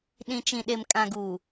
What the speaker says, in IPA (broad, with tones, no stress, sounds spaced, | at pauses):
ɗ ĩ˨ t͡ʃ ĩ˨ ɗ e˨ m kʼ ã˨ ɡ uː˨